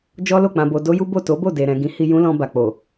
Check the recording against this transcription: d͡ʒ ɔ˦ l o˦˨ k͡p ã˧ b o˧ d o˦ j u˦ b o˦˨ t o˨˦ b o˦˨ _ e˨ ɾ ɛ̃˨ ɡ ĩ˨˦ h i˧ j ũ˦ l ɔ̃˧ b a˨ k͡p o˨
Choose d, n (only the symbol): d